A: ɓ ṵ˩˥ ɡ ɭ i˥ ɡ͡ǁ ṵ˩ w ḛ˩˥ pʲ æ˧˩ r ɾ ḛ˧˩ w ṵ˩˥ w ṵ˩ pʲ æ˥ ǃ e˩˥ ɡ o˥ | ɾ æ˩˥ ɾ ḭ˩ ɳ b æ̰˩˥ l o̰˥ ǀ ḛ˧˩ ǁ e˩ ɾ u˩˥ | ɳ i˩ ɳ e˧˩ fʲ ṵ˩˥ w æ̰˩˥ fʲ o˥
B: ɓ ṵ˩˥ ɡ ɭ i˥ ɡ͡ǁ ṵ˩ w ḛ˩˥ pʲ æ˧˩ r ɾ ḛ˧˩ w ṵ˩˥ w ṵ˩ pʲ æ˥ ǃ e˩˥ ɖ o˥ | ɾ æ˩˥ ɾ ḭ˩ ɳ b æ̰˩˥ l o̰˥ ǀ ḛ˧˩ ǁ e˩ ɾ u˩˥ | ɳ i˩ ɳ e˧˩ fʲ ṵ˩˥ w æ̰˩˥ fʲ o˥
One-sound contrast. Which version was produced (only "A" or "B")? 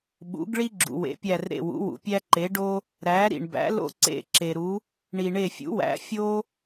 B